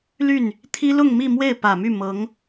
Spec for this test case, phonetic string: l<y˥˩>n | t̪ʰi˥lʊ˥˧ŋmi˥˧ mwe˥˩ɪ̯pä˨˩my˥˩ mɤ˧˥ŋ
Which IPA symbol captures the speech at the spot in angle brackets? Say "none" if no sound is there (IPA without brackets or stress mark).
y˥˩